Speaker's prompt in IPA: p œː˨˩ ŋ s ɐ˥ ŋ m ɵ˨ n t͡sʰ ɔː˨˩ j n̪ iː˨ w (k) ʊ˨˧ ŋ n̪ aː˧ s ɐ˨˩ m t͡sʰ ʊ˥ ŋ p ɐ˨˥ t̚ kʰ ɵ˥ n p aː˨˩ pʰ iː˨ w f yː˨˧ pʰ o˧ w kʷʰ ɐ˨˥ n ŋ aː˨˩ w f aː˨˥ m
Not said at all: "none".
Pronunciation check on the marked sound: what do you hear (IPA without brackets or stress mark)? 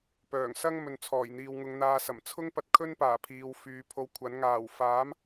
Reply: ŋ